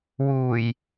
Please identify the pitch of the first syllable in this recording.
low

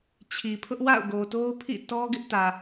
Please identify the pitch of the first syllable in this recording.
low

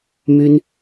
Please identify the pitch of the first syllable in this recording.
high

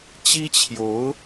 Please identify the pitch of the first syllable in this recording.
high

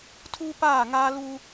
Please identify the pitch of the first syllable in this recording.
high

